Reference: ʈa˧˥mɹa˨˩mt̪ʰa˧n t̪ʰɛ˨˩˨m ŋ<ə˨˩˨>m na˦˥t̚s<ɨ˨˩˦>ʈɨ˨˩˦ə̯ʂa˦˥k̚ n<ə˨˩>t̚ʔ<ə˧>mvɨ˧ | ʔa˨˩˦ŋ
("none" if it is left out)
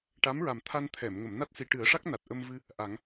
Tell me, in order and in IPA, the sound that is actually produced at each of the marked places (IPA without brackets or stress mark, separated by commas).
ə˨˩˨, i˨˩˦, a˨˩, ə˧